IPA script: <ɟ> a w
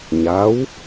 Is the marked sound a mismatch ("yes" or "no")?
yes